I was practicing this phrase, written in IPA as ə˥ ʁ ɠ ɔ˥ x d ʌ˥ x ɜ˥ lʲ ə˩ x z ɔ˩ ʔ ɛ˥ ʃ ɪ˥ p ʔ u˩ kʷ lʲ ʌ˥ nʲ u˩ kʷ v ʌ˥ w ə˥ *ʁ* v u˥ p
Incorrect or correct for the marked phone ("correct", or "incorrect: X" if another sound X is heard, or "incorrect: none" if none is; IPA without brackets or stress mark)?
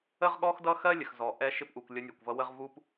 correct